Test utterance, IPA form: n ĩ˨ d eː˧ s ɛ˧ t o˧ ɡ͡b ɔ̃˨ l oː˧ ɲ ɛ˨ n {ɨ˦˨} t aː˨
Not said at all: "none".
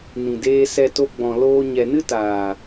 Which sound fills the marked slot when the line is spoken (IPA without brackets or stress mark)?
ɨ˦